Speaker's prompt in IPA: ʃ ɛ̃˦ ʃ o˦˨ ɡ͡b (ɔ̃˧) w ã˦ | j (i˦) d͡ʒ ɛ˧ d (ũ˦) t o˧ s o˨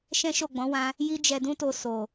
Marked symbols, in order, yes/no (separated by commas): no, yes, yes